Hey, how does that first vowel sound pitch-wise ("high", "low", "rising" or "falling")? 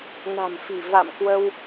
low